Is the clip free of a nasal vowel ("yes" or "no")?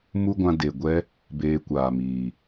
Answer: no